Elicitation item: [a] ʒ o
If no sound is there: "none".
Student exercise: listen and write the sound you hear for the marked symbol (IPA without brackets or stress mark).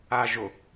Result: a